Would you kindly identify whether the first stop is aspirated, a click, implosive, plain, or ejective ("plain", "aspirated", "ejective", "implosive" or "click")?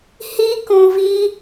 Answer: plain